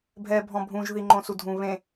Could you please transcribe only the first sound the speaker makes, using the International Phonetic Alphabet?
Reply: bʱ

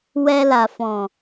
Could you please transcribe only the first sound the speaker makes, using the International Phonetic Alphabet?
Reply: w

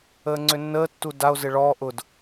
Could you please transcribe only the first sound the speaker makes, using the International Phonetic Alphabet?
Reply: əː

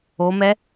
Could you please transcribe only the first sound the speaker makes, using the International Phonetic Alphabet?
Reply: o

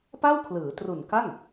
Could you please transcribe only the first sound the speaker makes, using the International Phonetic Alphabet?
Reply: p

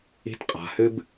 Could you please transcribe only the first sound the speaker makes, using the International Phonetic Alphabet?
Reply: i̤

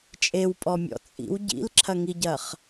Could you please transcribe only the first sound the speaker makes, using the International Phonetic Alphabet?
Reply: t͡ʃʼ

